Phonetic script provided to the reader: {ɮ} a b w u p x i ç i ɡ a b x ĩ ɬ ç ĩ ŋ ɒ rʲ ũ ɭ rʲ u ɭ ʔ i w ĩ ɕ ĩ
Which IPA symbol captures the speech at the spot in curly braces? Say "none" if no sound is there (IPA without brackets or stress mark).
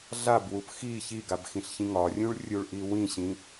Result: ɮ